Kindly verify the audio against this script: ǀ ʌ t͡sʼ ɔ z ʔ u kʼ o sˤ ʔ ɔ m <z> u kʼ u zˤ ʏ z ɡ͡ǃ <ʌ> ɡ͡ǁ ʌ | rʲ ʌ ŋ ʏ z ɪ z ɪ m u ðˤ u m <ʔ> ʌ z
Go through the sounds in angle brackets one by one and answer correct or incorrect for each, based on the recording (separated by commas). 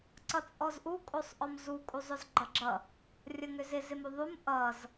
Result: correct, correct, correct